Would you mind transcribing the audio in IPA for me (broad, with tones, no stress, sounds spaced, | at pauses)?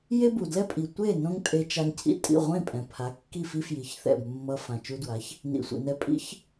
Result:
j e˥ b u˩ d l ɛ˥ pʼ i˩ tʷ e˥˩ n õ˥ ŋ tʼ e˧ t͡ʃ a˧ ŋ cʰ ḭ˥˩ tʼ ḭ˥˩ ʁʷ ẽ˥˩ pʼ ɛ̃˩ pʰ a˩˥ kː i˥˩ f i˥ f j i˩˥ ç θ ɛ̰˥˩ b mː ʌ˧ f ã˩ t͡ʃ u˧ d w a˩˥ ç | n ḭ˩ sʷ ḭ˩ n ɛ˧ pʼ ḭ˥ ç